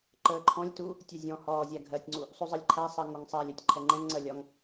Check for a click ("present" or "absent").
present